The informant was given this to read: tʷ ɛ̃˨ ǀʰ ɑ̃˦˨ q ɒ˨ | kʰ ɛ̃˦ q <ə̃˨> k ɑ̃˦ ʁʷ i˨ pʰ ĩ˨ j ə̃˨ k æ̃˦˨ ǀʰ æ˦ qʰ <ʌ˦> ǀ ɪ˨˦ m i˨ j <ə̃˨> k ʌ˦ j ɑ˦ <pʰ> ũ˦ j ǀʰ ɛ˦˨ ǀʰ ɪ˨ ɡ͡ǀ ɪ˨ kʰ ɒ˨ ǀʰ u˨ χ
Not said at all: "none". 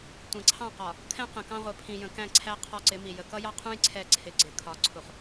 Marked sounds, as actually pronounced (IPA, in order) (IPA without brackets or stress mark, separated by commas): ə̃˨, ɒ˦, ə˨, qʰ